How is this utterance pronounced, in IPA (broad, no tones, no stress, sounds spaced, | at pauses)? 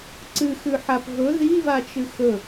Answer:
ǀ ɨ x ʉ ħ a p v ɵ ð i v a t͡ʃ ɨ x ɵ